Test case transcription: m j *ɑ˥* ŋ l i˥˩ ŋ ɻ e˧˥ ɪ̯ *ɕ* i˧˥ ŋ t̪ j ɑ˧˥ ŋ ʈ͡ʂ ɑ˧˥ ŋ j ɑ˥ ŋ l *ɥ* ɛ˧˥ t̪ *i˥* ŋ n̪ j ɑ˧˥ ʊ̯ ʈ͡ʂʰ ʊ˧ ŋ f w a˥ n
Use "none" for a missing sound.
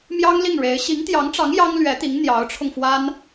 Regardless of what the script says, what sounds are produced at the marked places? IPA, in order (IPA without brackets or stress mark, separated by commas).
ɑ˥, ɕ, ɥ, i˧˥